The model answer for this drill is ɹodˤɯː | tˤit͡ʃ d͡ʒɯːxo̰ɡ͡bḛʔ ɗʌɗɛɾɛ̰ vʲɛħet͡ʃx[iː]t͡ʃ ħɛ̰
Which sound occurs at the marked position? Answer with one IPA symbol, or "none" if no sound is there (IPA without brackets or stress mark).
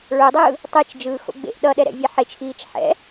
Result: iː